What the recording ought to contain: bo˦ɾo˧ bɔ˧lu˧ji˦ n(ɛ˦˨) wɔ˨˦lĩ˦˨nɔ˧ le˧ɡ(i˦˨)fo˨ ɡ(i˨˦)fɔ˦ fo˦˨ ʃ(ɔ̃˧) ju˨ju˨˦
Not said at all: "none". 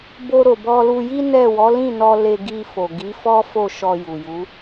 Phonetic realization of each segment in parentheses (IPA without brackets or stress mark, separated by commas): ɛ˦˨, i˧, i˨˦, ɔ˧